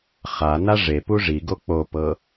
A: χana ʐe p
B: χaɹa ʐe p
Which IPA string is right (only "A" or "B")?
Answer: A